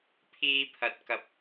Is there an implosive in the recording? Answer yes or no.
no